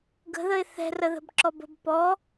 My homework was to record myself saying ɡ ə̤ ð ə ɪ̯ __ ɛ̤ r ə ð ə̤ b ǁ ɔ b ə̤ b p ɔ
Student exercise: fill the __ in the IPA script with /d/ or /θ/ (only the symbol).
θ